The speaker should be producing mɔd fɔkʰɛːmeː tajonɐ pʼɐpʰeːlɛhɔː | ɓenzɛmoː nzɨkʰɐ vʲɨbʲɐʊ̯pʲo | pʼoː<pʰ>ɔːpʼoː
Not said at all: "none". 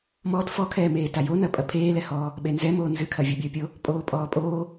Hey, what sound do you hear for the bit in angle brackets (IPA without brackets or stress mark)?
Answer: pʼ